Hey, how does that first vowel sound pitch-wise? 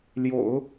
low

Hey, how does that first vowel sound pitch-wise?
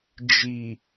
low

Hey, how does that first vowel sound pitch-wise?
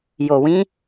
low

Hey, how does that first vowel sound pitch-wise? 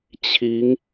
rising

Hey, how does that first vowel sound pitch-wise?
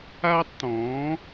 high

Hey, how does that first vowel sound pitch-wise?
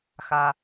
low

